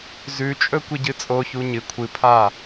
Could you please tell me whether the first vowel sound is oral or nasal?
oral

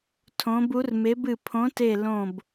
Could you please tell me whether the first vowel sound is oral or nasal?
nasal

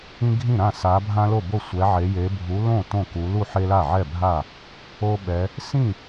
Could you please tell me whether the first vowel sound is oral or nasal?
nasal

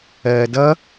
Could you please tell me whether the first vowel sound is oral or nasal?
oral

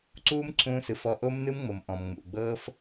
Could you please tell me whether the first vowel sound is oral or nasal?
oral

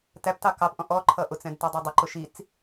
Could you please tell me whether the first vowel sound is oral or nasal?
oral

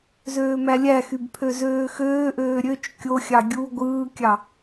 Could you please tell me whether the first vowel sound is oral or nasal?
oral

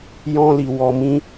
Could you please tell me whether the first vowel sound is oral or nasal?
nasal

